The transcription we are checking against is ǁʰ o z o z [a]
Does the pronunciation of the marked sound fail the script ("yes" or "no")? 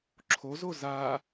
no